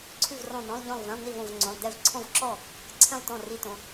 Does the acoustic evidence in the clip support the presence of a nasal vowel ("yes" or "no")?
yes